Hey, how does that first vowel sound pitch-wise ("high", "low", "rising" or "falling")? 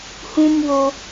high